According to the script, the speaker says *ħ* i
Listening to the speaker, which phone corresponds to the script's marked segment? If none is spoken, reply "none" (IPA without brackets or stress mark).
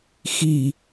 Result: x